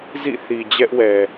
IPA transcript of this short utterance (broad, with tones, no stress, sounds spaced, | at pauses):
z ḭ˦˨ θ i˨ d͡ʑ ɛ˦ ʔ w ɛ˨